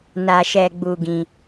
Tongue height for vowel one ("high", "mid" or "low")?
low